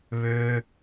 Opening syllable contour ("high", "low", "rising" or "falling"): low